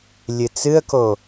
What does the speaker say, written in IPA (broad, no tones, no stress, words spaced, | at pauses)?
lʲɨt͡sɨə̯ko